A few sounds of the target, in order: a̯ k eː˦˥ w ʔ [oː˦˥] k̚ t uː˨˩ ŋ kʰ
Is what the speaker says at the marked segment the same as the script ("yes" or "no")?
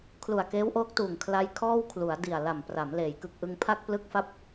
yes